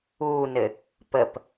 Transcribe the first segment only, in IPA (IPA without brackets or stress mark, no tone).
uː